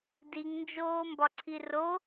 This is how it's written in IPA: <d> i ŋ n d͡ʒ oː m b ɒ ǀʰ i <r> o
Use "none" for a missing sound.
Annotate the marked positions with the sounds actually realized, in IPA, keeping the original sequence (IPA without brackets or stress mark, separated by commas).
d, r